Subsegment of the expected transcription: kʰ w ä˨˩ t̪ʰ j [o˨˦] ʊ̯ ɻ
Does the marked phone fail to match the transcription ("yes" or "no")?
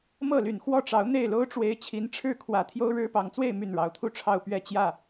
yes